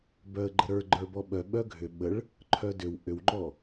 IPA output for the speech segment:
b œ ə̯ ɡ͡ǃ ə ɾ ə˞ ɡ͡ǃ ə˞ b ɔ ɓ œ ɓ œ ɡʱ ʏ ɓ ə ɭ | ǃʰ œ d ʏ w ʔ ʏ w ŋ͡ǃ ɔ

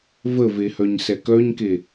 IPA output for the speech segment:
v ə v e h œ ɲ s ɛ k œ ɲ k e

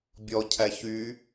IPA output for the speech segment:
bʲ ɔ cʰ æ ç y

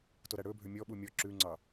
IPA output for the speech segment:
t o ɾ æ ɽ ɵ bʱ ø mʲ ɔ ɓ u mʲ ɔ ǁ ʉ ŋ͡ǀ ɑ

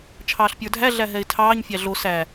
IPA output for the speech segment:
t͡ʃʰ ɑː ɬ pʲ ə˞ dʱ æ ɮ æ ɦ ɛ ɪ̯ tʰ ɑː ɲ fʲ æ ɮ o s æ

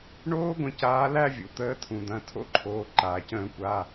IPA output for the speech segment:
ɳ oː˦˥ ɡʷ ə̃˩˧˩ c aː˨˦ l æ˥˧ vʲ ṵ˩ t̪ əː˨˦ tʰ ũ˩ d̪ ɐ̃˩˧˩ tʰ o̰˥˧ ǃʰ oː˩˧˩ ǃ aː˩ c ə̃ː˧˩˧ kʷ a˩˧˩

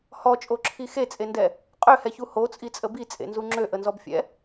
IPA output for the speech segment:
h ɔ t͡ʃʼ o ǁʰ i x e t͡sʼ e n d ɛ | qʼ ø h ɛ ç u h o t͡sʼ i t͡sʼ ə b i t͡sʼ ḛ n z u ŋ͡ǁ ø ʔ ə n z ɔ b fʲ ɛ̰

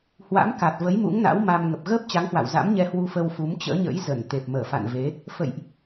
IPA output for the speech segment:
h w a̰˧˥ m k a˨˩ t̚ v ə˨˦ j m ṵ˧˥ ŋ n a̰˧˥ w m a˧ m ŋ ə˨˩ p̚ ɣ əː˦˥ p̚ t͡ɕ a˨˦ ŋ h w a̰˧˨ w z a̰˧˥ m ɲ ɛ˧ h w u˧ f ə˧ w f u˨˦ m t͡ɕ ə̰ː˧˥ ɲ ə̰˧˥ j z ə˧˩ n t̪ e˨˩ p̚ m əː˧˩ f a̰˧˨ n v e˨˦ | f ə̰˧˨ j ʔ

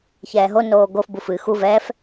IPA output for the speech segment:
ç ɛː ɦ o n oː ɡ o f b u f ɨ x u v ɛː f

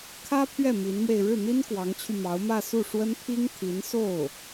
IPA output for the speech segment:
kʰ ä˥ pʰ ɥ ɛ˥˩ m i˧˥ n m w e˧ ɪ̯ ɻ ɻ̩˥˩ n̪ i˥ n k w ɑ˧˥ ŋ t͡ɕʰ y˧ m ɑ˧˥ ʊ̯ m ä˥˧ s u˥˩ ʂ w ə˥ n pʰ i˥ ŋ t̪ʰ i˧˥ n s o˥˩ ʊ̯

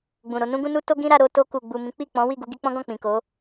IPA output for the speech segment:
ɡ͡b ũ˨ ɾ o˧ n ũ˦ ɡ ũ˦ n u˦ t o˦ ɡ ĩ˦ ɾ a˧ ɾ o˧ t o˧ k u˨ ɡ͡b u˨ m ĩ˨˦ k͡p i˦˨ k͡p ɔ̃˨˦ w i˦˨ ɡ u˧ ɡ i˧ k͡p ɔ̃˦ ɡ ɔ̃˦˨ k͡p ĩ˨ k o˨˦

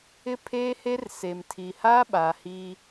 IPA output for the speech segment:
ɪ˦ pʰ eː˦ h e˦ r s e˨ m tʰ i˨ h aː˦ ɓ aː˨ h i˦

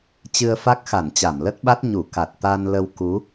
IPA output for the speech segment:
t͡ɕ ɨ˧ ə̯ f a˦˥ k̚ x a˧˩ n t͡ɕ a˧˩ m l ə˦˥ t̚ ɓ a˦˥ t̚ ɲ u˧˩ k a˨˩ t̚ t̪ a˧ n l ə˧ w k u˨˦

